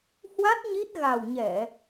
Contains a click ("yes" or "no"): no